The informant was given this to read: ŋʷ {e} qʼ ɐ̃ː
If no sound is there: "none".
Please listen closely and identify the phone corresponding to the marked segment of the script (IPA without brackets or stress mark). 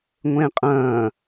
ẽ